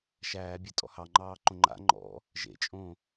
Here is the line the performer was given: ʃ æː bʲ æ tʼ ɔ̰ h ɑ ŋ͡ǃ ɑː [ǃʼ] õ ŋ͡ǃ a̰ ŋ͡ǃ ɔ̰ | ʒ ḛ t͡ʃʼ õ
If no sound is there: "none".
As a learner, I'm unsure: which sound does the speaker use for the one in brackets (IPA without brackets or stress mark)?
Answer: ǃ